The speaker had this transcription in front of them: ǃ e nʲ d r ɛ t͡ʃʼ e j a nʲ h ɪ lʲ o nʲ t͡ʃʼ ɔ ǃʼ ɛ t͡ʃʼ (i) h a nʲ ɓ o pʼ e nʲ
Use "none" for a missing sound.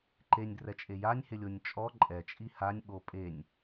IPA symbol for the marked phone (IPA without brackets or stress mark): i